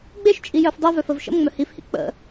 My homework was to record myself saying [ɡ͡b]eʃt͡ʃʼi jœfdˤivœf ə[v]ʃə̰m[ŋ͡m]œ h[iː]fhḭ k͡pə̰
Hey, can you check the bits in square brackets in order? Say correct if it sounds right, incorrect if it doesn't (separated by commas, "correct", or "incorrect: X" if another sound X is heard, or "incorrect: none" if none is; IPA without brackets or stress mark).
correct, correct, correct, incorrect: i